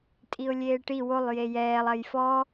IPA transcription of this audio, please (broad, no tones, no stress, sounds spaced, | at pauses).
tʼ i ʊ̯ lʲ eː ʈ i w o lˠ j e j ɛː lˠ ɐ j f ɔ